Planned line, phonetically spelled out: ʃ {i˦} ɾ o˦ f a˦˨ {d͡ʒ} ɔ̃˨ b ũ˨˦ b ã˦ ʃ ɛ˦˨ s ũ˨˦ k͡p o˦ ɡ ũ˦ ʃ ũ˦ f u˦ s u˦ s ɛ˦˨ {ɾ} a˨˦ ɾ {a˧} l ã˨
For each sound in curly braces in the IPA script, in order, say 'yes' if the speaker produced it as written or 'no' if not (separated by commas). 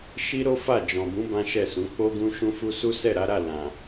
yes, yes, yes, no